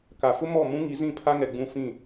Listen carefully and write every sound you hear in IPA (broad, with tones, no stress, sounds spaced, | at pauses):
k a˨ f ʊ˦ m ɔ˦˨ m ũ˦ ŋ i˨˦ z ĩ˦˨ pʰ a˦ ŋ ɛ˨ ɡ͡b ũ˦˨ f ĩ˦˨